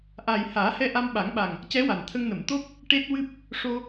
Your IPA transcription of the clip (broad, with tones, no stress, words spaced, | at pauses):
ʔa˨˩j haː˨˩˦hɛ˧ ʔa˧mɓa˨˩˦ŋɓa˨˩ŋ | cɛ˧˥wa˨˩nt̪ʰə˧ŋnə˨˩˨m t̪o˦˥p̚ | ʈe˦˥t̚wɨ˦˥p̚ | ʂo˧